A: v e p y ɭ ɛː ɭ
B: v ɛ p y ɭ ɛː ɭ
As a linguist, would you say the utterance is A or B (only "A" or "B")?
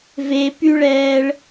A